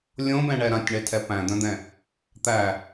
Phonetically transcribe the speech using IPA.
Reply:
lʲ õ b ɛ̃ ɳ ɛ ɾ ã tʲ ɳ ɛ tʰ ɛ p æ̃ d̪ œ̃ d̪ ɛ̃ | t̪ æ

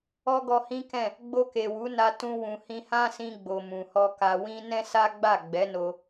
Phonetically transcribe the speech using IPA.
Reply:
ɔ˦ ɡ ɔ˧ h ĩ˦ k ɛ̃˦˨ | ɡ͡b o˧ k e˨ w u˨˦ n a˧ t ũ˧ w ũ˨ h ĩ˧ h ã˦ s ĩ˧ ɡ͡b o˨ m ũ˨ h ɔ˧ k a˧ w ĩ˦ n ɛ̃˦ s a˦ ɡ͡b a˦˨ ɡ͡b ɛ˨˦ n o˧

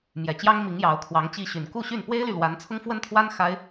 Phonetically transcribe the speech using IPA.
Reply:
m j ɛ˨˩ t͡ɕ j ɑ˥ ŋ m i˧˥ ŋ j ɑ˧˥ ʊ̯ kʰ w ɑ˧˥ ŋ t͡ɕ i˥˩ ɕ y˨˩ n k u˥˧ ɕ y˥˩ n p w e˥ ɪ̯ l y˨ l w a˧˥ n t͡sʰ ʊ˥ ŋ f w ə˥ n t̪ʰ w a˥ n x a˥ ɪ̯

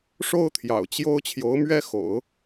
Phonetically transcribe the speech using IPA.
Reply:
ʂ o˥ ʊ̯ t̪ʰ j ɑ̰˨˩ ʊ̯ t͡ɕ j o˥ ʊ̯ t͡ɕʰ j o˧˥ ʊ̯ m ɥ ɛ˥ x o̰˨˩˦ ʊ̯

